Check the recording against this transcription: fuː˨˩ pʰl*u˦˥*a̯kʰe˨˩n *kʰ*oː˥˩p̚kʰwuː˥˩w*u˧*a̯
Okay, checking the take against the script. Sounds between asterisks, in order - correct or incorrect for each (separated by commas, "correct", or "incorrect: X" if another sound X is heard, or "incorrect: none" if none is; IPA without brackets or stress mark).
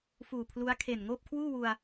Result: correct, incorrect: ŋ, correct